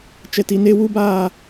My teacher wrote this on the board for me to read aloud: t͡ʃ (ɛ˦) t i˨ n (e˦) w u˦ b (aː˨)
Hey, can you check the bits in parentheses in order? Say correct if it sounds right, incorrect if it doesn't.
incorrect: ɛ˨, correct, incorrect: aː˦˨

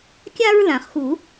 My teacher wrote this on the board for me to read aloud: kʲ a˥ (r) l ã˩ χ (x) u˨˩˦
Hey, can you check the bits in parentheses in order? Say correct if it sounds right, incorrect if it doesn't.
incorrect: ɹ, correct

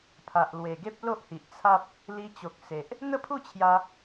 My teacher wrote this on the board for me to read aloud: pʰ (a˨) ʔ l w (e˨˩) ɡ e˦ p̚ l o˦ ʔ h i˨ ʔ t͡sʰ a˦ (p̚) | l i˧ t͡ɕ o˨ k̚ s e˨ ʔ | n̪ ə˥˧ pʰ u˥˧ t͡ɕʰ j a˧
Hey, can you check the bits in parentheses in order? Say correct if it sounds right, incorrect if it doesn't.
correct, correct, correct

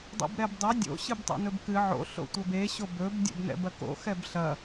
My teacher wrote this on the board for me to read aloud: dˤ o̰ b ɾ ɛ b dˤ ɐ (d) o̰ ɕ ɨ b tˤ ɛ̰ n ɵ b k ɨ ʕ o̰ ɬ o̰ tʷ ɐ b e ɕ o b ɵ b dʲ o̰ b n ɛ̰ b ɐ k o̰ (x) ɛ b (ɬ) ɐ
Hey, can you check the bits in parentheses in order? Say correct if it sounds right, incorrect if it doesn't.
incorrect: dʲ, correct, correct

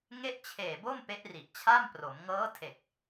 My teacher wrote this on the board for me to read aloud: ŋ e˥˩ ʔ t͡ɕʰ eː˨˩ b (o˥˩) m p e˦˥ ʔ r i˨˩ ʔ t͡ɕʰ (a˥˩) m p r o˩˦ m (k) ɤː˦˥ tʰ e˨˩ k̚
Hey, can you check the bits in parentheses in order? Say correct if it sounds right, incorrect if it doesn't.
correct, correct, incorrect: ŋ

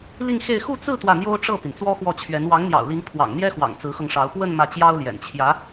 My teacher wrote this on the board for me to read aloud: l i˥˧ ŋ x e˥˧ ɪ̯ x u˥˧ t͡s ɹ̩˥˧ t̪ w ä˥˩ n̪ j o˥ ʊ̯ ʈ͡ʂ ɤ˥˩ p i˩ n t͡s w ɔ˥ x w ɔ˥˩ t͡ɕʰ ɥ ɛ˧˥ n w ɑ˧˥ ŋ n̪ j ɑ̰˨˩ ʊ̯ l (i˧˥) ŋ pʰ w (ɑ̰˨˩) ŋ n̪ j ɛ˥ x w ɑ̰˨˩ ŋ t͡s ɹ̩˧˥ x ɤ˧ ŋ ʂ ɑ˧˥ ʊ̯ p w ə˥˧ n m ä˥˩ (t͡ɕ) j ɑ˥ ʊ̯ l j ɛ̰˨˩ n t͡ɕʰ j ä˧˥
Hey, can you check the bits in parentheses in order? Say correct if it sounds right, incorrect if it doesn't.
correct, correct, correct

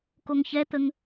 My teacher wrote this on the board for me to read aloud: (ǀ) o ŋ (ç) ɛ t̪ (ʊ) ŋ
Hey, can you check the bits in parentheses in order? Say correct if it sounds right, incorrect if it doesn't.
incorrect: k, correct, incorrect: ə

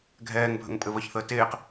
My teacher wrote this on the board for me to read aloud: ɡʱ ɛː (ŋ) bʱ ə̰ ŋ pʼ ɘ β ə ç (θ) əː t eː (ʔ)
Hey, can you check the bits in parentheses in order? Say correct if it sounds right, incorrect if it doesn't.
correct, correct, incorrect: q

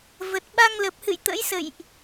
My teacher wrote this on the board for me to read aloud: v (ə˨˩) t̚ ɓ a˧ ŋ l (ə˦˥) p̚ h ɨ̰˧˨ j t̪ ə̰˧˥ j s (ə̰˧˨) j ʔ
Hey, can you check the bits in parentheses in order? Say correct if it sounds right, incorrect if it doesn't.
correct, incorrect: ə˨˩, correct

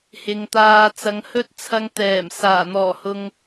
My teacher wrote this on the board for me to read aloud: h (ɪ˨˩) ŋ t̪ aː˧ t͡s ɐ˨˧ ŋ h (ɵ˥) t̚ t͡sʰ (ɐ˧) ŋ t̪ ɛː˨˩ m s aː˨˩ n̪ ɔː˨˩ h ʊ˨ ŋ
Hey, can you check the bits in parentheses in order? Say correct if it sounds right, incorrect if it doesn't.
incorrect: ɪ˨, correct, correct

